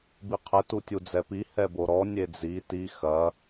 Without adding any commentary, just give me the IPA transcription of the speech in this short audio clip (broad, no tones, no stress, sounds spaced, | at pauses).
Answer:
b i qʰ ɘ t u tʲ u d͡z ɛ p i h ɛ b o ɾ ɔ nʲ e d͡z i t i x ɐ